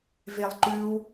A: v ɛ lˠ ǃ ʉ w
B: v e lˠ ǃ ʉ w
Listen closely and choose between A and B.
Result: B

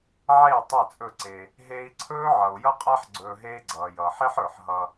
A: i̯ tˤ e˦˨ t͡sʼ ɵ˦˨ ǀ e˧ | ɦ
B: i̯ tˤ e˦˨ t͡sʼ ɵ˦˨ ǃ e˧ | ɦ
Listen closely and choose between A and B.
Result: A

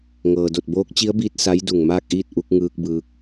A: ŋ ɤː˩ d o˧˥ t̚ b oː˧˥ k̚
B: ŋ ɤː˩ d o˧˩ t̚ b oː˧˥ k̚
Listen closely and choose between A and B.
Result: B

